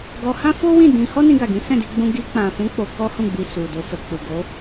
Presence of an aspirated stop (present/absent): absent